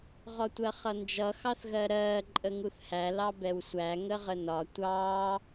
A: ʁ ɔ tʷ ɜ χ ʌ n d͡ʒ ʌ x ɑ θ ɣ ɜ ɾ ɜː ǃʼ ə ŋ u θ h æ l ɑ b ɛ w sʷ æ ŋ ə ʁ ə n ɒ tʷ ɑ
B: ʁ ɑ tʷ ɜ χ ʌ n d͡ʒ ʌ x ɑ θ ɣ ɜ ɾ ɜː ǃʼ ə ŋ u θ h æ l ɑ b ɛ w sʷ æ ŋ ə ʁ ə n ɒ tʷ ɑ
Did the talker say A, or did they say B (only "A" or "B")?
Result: A